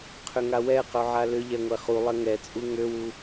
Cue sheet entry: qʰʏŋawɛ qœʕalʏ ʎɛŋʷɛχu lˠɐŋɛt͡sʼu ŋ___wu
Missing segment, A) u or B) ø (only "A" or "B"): B